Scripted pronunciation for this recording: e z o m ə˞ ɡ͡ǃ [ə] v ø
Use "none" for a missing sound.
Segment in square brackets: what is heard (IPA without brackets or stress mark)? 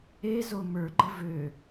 ə